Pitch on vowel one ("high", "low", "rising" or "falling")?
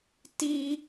high